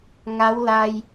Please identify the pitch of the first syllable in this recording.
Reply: rising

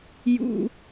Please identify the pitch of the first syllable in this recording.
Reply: high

